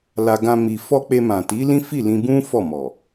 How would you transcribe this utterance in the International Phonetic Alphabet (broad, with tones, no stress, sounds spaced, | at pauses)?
l a˧ ɡ ã˧ m i˨ f ɔ˧ k͡p e˧ m ã˨ t i˨˦ l ĩ˦ f i˦˨ l ĩ˧ b ũ˦ f ɔ˦˨ m ɔ˨